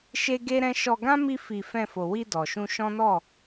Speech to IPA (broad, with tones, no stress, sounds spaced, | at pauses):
ʃ e˦ ɡ e˦ ɾ ɛ̃˦ ʃ ɔ˧ ɡ ã˦ m i˦ f i˧ f ɛ̃˧ f o˨ w i˧ d ɔ˨ ʃ ũ˧ ʃ ɔ̃˦ n ɔ˦˨